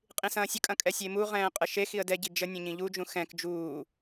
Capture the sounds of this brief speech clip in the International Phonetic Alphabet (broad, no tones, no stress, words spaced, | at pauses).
qʼĩsɐ̃ːsʲəkʼɐ̃ kʼɛsʲemuʁɛ̃ː qʼəʃexiə̯ dɛɟi d͡ʒə nʲɛ̃ɲĩʎud͡ʒũ xɛ̃k d͡ʒuː